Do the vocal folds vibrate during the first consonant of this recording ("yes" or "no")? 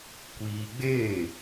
no